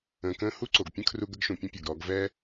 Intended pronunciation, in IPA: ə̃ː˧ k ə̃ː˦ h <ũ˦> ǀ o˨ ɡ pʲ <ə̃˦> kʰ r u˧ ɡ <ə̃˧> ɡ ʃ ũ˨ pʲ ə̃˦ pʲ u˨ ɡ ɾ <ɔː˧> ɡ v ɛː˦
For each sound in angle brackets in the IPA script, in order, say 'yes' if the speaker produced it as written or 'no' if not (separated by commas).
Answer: no, yes, no, yes